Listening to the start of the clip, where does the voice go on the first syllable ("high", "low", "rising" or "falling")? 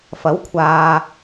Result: rising